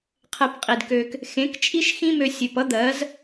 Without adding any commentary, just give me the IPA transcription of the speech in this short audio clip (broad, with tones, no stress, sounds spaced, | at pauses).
qʰ ɛ˧ p qʼ i˨ d k ø˧ k | x ẽ˨˦ k t͡ʃʼ i˦ ʃ x ĩ˦ m ø˧ sʲ ʉ˨ p ʌ˦ d̪ ɜ˨˦ z